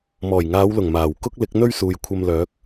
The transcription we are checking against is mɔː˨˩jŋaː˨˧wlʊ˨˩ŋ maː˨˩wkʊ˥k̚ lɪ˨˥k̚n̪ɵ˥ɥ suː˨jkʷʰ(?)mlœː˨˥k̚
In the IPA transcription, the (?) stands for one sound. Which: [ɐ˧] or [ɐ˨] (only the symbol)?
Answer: ɐ˧